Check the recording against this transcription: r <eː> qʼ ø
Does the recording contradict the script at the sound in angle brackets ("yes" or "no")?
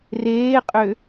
no